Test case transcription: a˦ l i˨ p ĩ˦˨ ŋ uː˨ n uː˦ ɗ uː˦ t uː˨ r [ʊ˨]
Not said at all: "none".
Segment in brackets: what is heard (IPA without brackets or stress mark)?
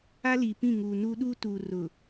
ʊ˨